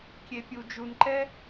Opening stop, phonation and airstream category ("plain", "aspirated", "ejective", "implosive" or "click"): plain